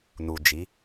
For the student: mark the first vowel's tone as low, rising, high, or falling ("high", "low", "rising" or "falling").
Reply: low